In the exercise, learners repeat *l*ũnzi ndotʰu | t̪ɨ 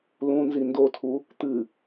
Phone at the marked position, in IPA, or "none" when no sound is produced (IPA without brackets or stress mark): l